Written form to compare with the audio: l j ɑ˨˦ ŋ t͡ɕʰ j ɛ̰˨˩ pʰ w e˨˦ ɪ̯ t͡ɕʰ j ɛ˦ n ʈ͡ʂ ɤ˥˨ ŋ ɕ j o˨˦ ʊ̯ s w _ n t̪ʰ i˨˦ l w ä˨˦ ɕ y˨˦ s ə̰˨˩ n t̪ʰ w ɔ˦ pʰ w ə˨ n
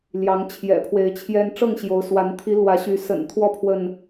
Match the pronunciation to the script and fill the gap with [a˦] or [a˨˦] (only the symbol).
a˨˦